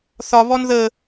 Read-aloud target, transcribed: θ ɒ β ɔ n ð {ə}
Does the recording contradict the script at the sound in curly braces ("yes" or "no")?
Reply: no